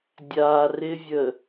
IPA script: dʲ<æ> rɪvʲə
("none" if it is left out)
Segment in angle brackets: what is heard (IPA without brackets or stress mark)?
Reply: a